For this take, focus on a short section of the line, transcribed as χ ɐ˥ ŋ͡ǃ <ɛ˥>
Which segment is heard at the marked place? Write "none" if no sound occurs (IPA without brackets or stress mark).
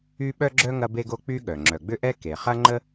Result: ə˥